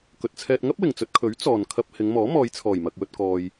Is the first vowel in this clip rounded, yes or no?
yes